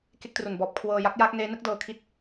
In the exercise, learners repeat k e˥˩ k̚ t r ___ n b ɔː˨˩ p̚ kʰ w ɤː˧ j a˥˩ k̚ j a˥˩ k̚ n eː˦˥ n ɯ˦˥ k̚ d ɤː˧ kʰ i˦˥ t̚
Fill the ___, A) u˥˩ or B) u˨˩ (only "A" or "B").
B